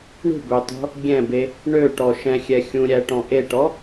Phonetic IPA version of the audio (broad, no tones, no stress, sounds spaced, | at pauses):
ɳ ṳ b ø tˤ o̤ | ɡʲ ɛ̃ b e | ɳ ø ʈ ɔ ʃ ɛ̃ xʲ ɛ xʲ ũ ɾʲ æ ʈ ɔ̃ ʔ e ʈ ɔ